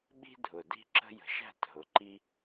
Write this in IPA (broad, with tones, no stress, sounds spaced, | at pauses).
ɓ i̤˦ dʱ ʊ˨ d i̤˦ ǁ ə̤˦ j ə̤˨˦ ʃ æ̤˦˨ t ɦ ʊ˨˦ ǃ i˦